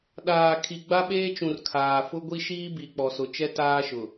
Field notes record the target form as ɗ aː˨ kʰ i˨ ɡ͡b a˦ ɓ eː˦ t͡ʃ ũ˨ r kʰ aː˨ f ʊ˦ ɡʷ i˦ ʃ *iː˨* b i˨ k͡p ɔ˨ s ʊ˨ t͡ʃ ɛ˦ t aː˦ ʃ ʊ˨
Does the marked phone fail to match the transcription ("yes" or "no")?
yes